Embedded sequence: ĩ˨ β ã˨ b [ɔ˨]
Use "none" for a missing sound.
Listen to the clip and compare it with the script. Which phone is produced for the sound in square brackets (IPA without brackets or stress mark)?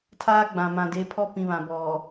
ɔ˨